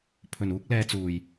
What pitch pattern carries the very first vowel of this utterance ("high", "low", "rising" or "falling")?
low